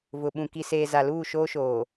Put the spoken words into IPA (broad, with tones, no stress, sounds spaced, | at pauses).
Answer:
v ʊ˨ ɓ ũ˨ k i˨ s eː˨ z a˨ l uː˦˨ ʃ oː˦ ʃ oː˨